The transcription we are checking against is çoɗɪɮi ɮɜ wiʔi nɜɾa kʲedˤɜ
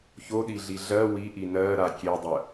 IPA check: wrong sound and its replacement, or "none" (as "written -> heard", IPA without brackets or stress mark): ɪ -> i